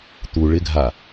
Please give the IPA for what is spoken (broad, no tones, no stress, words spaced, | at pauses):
t̪u ɭɪɡʱa